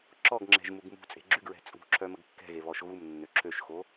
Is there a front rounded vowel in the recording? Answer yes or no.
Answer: yes